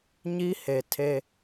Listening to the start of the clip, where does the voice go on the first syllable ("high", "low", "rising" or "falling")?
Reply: high